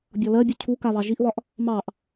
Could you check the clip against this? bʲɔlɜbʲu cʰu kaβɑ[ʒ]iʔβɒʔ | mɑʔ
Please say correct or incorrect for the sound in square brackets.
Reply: correct